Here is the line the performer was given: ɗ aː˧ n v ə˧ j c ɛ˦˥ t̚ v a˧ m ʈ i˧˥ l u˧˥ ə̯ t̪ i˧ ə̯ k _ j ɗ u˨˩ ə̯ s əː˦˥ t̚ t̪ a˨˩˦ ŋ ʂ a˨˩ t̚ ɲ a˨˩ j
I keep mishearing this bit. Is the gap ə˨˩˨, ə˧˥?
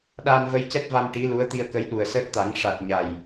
ə˧˥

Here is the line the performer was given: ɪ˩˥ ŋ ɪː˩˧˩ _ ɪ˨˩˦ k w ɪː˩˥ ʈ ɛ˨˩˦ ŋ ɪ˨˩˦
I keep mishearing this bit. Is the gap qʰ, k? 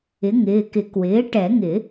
k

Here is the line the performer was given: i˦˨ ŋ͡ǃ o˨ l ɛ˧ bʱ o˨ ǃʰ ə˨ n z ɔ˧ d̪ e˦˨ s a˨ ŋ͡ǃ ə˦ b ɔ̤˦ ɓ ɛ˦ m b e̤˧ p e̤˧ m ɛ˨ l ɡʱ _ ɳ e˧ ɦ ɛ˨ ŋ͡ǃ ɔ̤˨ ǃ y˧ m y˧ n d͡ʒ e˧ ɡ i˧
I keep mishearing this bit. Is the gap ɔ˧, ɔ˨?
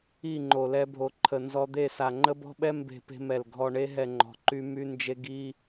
ɔ˨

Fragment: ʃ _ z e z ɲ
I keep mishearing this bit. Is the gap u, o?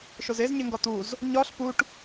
o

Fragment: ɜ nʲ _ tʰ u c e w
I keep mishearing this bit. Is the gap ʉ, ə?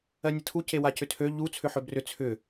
ə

